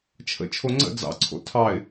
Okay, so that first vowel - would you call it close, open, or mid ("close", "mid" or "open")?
mid